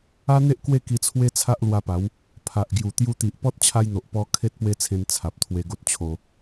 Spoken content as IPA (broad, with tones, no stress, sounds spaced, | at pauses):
a˦ n̪ e˦ ʔ k w e˥˧ k i˧ t͡sʰ w e˦ t͡sʰ a˦ ʔ l w a˧ p a˨˦ w | pʰ a˨ ʔ ɡ j u˨˩ t̪ j u˧ t̪ i˨ ʔ p ɔ˦ t̚ t͡ɕʰ a˧ j n̪ o˨ ʔ p ɔ˧ kʰ e˦ t̚ p w e˦ t͡sʰ ẽ˧ n t͡sʰ a˨ p̚ t̪ʰ w e˧ ɡ o˦ t̚ t͡ɕʰ o˧